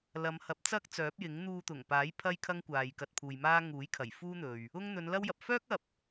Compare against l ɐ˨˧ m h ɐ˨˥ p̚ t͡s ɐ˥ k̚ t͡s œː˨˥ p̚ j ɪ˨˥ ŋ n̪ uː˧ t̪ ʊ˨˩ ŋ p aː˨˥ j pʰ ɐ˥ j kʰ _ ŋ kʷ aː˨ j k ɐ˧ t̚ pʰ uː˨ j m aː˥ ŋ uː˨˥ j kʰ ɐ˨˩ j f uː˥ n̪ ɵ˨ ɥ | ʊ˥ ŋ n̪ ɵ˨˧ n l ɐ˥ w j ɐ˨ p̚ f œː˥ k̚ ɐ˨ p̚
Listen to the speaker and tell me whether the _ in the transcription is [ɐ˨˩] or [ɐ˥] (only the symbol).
ɐ˥